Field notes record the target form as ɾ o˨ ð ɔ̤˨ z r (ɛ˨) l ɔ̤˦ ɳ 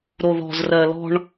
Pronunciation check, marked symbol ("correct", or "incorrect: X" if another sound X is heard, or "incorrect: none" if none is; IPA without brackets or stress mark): incorrect: ɜ˨